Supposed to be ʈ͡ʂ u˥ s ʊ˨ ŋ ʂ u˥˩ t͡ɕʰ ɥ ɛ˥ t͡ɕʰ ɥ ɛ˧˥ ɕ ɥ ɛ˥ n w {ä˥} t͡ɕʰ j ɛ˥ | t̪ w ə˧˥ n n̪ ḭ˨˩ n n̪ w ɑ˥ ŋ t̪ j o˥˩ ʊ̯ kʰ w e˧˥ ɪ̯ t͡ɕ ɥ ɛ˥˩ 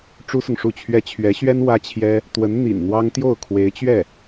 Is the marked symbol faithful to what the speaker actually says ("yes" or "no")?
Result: yes